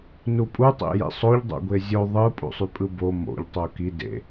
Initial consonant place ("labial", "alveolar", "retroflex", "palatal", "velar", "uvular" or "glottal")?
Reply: alveolar